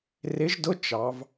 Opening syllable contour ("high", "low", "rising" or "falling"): rising